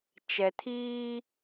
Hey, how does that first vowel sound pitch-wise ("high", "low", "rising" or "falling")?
low